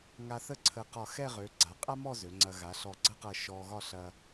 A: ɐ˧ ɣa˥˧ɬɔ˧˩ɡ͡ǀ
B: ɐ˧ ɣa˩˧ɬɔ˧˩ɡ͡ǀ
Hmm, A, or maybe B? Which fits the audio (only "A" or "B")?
B